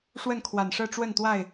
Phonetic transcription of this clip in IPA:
ʂ w ə˥˨ n kʰ w a˨˩ n ʂ ɤ˥˨ ʈ͡ʂ w ə˥˨ n t̪ w a˥˨ ɪ̯

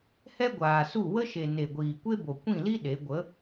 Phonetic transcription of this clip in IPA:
h ɛ˦ ɡʷ aː˨ s u˦˨ w ə˦ ʃ e˨ n e˨ ɡʷ iː˨ kʷ e˦ b o˨ kʷ ĩ˦˨ l i˦ ɗ e˨˦ ɡʷ ə˨˦

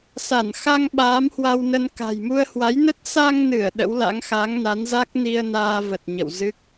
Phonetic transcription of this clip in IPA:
s a˧˩ n x a˧ ŋ ɓ aː˨˦ m h w a˧ w n ə˧ n k a̤˨˩ j m u˧ ə̯ h w a˨˦ j n ə˦˥ t̚ s a˧ ŋ n ɨ˧˩ ə̯ ɗ ə̰˧˥ w l a̰˧˥ ŋ x a˨˦ ŋ n a˨˦ n z a˦˥ k̚ n i˧ ə̯ n aː˧ v ə˨˩ t̚ ɲ ə̰˧˨ w z ɨ˦˥ k̚

